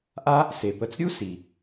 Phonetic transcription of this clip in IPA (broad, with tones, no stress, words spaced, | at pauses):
ʔa˥ | se˩pə˨t͡sɾʲu˥ si˩